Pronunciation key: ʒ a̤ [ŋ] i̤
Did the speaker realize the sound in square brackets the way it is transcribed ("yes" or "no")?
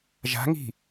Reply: yes